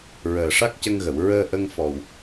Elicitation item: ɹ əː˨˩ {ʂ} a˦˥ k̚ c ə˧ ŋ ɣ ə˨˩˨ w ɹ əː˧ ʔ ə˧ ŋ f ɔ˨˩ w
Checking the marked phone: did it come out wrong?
no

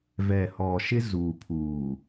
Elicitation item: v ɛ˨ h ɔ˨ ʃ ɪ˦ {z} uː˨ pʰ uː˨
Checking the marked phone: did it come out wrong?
no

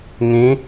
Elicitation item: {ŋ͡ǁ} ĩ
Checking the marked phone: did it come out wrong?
yes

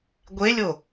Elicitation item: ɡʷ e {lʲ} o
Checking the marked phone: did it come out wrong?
no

